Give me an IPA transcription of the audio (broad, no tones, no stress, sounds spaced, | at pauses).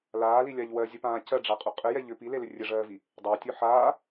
l aː l i lʲ a ʎ w ɜ zʲ ə p ãː c ɜ ɖ͡ʐ a qʼ ɵ qʼ ɘ j ɛ ʎ ʏ p i l e l ʏ rʲ ɘ ʐ ɜː v i | dˤ a tʲ ɵ ħ aː